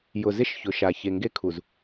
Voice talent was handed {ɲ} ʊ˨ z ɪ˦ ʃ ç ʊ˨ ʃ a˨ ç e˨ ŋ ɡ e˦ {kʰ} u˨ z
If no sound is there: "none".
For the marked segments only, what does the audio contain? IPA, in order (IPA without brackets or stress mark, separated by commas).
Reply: j, kʰ